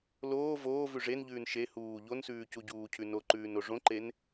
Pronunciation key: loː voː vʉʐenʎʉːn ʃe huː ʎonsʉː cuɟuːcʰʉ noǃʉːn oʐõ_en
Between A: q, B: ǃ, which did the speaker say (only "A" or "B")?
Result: B